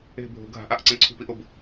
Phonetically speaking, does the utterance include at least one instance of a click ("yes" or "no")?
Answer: yes